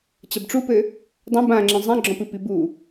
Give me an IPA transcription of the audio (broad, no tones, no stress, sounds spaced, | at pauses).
t͡ɕ ɐ b ʈ͡ʂ u p ɘ | dˤ ɐ̃ b ã ŋ͡ǁ ẽ zˤ ẽ ɡ͡ǁ ɔ̃ p ɨ p i b u